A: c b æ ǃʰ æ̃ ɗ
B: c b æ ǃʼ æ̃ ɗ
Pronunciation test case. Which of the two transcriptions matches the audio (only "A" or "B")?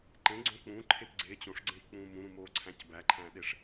A